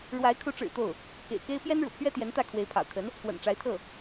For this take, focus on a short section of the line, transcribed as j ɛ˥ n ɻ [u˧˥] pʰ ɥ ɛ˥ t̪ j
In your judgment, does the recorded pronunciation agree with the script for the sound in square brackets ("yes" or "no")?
no